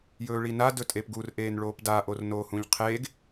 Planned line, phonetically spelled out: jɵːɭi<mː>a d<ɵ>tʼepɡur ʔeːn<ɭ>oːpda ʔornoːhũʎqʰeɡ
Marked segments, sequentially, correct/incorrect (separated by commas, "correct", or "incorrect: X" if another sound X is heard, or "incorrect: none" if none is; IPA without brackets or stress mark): incorrect: n, correct, correct